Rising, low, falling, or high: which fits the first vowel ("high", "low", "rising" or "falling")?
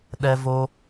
high